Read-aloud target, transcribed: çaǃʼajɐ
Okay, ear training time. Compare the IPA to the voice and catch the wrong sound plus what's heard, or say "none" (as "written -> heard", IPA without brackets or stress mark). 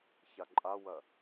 j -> w